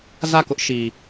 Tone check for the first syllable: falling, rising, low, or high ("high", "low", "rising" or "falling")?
falling